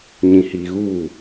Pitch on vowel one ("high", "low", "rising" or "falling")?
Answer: low